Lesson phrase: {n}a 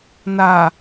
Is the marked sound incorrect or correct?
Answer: correct